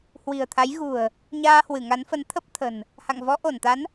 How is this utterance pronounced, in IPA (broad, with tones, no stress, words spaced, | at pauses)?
hwi̤˨˩ə̯t̪ʰa˨˦jɣṳ˨˩ə̯ | ɲaː˧hwɨ˧˩ŋa˨˦nfə˨˦n t̪ʰə˦˥p̚t̪ʰə̤˨˩n | ha̰˧˨ŋvɔ˨˦ʔo˧˩nt̪a˨˦n